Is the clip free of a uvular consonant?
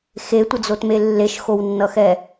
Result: yes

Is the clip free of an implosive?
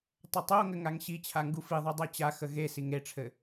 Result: yes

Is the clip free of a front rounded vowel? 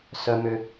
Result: no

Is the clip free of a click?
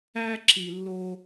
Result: no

